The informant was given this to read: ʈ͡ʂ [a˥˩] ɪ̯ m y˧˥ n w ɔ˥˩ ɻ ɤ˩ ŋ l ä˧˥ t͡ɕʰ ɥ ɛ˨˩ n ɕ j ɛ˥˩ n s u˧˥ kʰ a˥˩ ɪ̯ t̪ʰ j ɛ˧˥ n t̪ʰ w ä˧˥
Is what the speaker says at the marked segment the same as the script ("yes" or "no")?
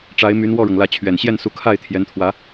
no